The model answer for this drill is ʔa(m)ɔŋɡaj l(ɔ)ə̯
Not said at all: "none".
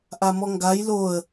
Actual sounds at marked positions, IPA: m, o

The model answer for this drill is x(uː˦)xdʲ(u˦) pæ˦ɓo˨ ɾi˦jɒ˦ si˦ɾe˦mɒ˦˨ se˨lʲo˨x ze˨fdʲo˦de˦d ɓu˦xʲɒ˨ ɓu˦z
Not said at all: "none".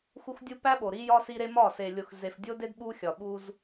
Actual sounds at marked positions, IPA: u˦, u˦

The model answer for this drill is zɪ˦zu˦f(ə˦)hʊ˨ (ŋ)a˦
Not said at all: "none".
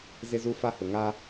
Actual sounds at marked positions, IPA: a˦, ŋ

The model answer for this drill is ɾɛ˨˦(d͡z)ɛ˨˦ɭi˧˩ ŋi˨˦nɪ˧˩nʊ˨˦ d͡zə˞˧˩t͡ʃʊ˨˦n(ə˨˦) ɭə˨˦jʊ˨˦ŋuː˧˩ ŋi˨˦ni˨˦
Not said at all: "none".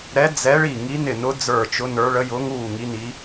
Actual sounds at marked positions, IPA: d͡z, ə˞˨˦

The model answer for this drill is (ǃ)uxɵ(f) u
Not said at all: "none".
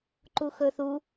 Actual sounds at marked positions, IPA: ǃ, θ

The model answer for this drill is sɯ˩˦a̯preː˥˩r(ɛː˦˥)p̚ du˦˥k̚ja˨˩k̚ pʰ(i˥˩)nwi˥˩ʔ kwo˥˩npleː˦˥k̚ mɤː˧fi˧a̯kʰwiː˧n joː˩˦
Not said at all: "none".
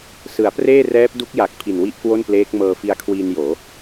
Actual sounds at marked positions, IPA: ɛː˦˥, i˨˩

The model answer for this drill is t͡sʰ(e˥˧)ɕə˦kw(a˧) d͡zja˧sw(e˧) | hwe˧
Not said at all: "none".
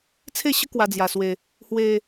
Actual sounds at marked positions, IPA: e˥˧, a˧, e˧

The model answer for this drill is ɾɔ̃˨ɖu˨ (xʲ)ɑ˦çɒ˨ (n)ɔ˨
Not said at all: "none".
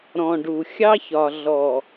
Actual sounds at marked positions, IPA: xʲ, ɮ

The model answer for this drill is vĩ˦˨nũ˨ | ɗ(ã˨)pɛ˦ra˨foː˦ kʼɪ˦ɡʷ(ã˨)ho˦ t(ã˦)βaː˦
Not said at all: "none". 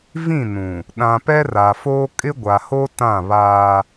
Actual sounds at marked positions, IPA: ã˨, a˨, ã˦˨

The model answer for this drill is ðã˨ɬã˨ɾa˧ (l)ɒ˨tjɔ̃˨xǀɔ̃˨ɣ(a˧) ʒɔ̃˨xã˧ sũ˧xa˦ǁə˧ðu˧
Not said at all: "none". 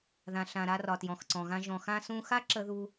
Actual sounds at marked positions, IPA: r, ã˧

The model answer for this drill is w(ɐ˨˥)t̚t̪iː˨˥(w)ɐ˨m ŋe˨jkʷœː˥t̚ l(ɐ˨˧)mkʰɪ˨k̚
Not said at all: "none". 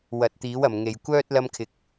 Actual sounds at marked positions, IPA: ɐ˨˥, w, ɐ˧

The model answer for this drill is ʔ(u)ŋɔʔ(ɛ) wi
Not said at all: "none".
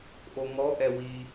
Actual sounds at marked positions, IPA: o, ɛ

